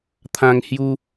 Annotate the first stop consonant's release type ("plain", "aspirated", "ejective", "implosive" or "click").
aspirated